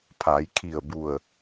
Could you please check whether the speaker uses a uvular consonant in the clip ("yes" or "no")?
no